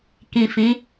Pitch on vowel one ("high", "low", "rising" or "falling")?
low